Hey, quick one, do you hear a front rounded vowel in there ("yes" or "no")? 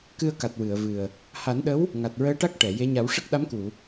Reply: no